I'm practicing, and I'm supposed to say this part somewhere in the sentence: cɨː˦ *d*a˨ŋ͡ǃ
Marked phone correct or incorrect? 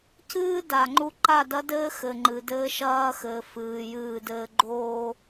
correct